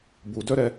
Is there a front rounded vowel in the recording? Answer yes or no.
yes